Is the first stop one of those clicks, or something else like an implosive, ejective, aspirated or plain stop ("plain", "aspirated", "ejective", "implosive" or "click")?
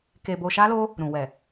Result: plain